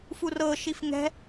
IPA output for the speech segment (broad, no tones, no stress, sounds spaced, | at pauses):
f u r ɤ ʃ i f ŋ ɛ̤